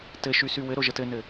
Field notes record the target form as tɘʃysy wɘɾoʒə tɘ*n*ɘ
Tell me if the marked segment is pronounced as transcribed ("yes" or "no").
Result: yes